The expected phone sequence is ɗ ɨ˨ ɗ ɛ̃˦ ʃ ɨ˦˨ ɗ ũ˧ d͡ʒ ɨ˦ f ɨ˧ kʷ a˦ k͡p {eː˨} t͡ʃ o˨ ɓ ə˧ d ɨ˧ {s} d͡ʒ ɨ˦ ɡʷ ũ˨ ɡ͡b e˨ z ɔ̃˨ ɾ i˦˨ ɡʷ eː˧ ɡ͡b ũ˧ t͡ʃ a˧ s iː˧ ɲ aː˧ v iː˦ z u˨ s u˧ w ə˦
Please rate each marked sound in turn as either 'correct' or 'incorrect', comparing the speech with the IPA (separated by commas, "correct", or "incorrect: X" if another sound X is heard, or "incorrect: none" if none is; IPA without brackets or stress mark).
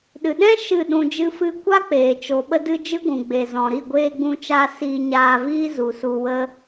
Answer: correct, incorrect: none